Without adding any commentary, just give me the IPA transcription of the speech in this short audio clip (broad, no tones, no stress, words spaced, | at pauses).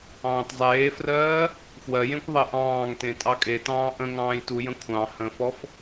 ɑ̃ːtzˤeːfrɜː | fwɜjẽkʷ ðˤeʔɑ̃ːŋtẽ tʼɑkʼetɑ̃ː ʔə̃ ŋɑ̃ːjtujə̃ kʷʰɑ̃ hə̃fɔf